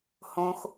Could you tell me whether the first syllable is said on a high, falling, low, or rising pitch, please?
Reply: low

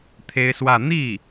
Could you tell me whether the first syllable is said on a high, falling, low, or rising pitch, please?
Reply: high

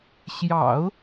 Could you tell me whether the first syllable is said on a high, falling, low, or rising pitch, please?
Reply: low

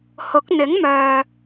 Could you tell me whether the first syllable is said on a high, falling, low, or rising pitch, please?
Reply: rising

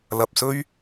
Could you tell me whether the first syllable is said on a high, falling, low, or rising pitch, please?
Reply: low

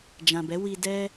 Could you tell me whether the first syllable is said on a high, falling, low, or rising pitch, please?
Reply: low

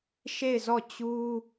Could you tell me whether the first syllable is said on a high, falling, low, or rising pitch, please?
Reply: falling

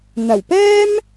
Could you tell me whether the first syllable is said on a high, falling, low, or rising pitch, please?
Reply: low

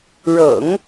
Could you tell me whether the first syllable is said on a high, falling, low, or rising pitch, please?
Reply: low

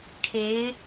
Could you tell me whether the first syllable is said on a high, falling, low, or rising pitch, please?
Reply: rising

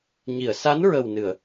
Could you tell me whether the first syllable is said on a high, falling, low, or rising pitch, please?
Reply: low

